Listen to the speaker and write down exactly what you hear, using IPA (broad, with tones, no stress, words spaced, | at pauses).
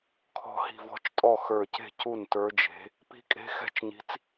kʰɔ̤˧˩hi̤˧˩vɔ̤˧˥˧t͡ʃtʼɔ˥˩ xə˞˧˩ce̤˥˩ cu˥˩ntə˞˧˥d͡ʒe̤˧˥ | pi̤˧˥kʼe̤˧˥ xɛ̤˥˩t͡ʃɲi̤˧˥t͡s